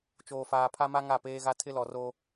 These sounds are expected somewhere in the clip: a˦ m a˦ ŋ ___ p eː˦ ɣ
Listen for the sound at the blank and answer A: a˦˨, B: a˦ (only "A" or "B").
A